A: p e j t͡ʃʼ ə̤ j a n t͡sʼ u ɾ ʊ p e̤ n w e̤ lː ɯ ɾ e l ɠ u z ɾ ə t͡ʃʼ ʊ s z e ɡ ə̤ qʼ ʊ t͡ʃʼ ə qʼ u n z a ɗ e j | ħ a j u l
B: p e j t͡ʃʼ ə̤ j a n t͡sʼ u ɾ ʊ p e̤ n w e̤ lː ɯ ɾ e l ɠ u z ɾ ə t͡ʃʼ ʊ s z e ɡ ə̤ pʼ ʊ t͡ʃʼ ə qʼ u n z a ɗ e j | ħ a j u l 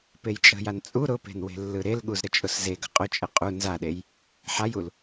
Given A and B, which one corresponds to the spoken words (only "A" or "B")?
A